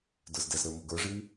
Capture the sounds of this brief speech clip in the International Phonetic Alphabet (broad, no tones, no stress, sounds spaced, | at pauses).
d ə˞ z d ɛ z ɾ ə˞ m o ɡ ə˞ ʐ i w